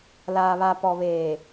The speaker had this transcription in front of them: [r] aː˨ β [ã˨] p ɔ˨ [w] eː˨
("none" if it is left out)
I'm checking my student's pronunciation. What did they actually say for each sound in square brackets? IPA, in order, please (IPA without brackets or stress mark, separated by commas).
l, a˨, β